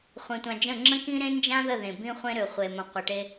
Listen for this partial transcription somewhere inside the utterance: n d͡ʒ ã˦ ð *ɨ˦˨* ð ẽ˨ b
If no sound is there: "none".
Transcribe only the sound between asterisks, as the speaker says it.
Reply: ə˦˨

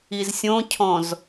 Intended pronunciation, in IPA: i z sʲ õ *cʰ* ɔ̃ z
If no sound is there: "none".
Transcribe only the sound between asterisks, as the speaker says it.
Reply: cʰ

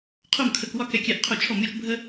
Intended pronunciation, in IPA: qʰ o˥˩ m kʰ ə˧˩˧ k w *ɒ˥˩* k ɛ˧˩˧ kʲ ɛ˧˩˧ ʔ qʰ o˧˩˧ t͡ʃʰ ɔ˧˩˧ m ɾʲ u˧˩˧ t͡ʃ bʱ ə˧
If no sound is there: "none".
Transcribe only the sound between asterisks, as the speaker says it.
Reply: ɒ˥˩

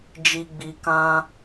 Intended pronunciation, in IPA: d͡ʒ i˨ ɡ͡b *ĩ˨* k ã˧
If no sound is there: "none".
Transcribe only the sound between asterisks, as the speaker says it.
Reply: i˨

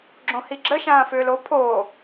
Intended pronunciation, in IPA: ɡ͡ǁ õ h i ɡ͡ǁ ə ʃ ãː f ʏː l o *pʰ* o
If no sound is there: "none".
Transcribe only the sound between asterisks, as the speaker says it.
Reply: pʰ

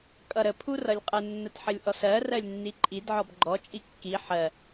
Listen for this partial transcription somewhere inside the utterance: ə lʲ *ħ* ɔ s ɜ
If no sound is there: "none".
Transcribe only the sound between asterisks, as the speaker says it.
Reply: ʔ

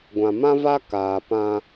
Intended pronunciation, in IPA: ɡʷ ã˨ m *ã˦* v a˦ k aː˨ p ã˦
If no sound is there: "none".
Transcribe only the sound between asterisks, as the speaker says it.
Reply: ã˦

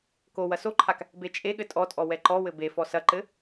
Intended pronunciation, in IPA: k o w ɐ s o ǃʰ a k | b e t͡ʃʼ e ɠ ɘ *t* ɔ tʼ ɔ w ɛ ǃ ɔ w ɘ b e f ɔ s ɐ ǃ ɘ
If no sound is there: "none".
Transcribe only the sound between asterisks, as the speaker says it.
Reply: tʼ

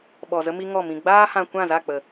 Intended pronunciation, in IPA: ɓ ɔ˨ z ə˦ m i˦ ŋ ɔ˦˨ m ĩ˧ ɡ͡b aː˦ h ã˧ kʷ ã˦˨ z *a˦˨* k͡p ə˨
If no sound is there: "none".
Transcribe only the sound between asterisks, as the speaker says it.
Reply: a˦˨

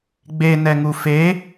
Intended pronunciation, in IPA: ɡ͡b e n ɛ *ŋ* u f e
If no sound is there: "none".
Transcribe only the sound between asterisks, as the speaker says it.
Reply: ŋ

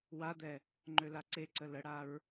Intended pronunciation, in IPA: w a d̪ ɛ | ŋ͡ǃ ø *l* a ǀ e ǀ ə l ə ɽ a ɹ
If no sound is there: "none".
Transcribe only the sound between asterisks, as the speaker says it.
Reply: l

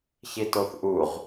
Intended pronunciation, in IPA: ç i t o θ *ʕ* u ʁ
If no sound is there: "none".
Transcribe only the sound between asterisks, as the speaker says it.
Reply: ʔ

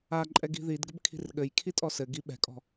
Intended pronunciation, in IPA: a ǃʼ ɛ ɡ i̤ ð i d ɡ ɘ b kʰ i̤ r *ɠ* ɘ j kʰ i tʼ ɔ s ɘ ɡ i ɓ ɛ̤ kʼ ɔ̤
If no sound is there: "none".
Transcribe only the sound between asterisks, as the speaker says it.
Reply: ɠ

